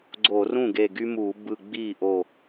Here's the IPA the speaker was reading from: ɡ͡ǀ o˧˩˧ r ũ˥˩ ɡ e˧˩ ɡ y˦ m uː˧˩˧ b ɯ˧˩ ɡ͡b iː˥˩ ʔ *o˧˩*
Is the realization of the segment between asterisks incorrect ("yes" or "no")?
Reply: no